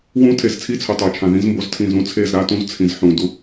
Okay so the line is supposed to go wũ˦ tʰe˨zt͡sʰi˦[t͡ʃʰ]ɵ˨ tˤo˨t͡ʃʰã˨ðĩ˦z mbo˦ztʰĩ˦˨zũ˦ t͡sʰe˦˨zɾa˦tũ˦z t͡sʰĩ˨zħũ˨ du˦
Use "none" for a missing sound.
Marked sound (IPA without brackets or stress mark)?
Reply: t͡sʰ